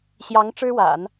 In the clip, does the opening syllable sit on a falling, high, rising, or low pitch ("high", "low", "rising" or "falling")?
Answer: rising